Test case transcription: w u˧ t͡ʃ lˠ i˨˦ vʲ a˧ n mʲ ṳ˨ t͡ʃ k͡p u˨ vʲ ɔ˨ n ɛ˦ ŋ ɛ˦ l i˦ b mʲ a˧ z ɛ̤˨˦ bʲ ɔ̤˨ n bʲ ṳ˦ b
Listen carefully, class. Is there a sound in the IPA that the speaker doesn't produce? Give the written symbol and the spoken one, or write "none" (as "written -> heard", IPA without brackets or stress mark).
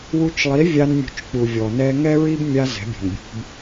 l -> ɹ